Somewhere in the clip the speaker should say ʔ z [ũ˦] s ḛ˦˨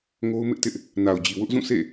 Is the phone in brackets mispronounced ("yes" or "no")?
yes